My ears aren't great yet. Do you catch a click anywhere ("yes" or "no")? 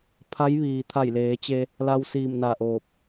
no